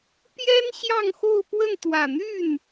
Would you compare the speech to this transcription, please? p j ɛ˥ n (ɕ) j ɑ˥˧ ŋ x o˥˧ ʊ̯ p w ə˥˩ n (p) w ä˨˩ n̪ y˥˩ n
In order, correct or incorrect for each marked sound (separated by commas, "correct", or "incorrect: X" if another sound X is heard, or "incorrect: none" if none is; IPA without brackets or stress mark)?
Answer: correct, incorrect: t̪